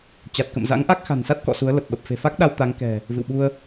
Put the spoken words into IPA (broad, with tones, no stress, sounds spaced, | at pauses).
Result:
t͡ɕ a˨˩ t̚ k ə̰˧˨ m z a̰˧˥ ŋ ʔ a˦˥ k̚ x a̤˨˩ n s a˦˥ t̚ k ɔ̰˧˨ s u˨˦ ə̯ l ə˨˩ p̚ ɓ ə˨˩ p̚ f e̤˨˩ f a˦˥ k̚ ɗ a˧ w t̪ a˨˦ ŋ k ɛ̤˨˩ | v ɨ̰˧˨ w ɓ u˧ ə̯